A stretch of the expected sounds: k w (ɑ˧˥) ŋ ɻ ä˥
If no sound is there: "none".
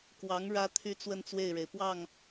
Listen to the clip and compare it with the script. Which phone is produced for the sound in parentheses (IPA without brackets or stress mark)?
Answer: ɑ˧˥